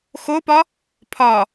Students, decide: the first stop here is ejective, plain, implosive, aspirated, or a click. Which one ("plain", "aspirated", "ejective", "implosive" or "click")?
plain